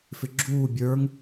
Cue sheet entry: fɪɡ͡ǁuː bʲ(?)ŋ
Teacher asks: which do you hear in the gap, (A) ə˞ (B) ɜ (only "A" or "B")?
A